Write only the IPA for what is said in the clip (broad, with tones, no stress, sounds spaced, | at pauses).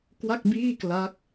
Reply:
k w a˥˩ k̚ b iː˥˩ k l a˦˥ k̚